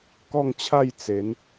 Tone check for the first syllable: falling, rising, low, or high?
falling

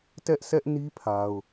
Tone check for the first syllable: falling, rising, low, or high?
high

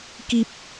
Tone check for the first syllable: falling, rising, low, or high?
low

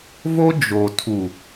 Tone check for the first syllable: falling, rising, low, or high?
high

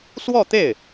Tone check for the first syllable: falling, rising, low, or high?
falling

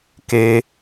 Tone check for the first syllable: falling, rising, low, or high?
high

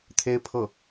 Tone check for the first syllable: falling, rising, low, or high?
high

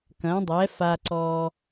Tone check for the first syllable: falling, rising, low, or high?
rising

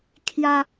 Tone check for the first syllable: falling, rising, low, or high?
high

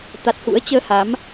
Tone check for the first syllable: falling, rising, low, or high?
low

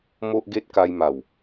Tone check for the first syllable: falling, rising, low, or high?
high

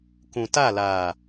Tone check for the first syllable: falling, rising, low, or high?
low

